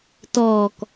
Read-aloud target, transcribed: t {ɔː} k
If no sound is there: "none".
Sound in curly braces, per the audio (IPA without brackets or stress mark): ɔː